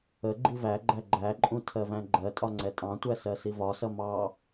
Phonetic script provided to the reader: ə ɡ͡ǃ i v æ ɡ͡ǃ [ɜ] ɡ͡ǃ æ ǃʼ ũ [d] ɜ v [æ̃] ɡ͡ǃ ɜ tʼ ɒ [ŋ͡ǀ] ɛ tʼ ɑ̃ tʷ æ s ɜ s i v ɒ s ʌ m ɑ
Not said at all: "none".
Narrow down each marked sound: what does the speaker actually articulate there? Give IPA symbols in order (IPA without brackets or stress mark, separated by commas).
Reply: æ, tʰ, æ̃, ŋ͡ǀ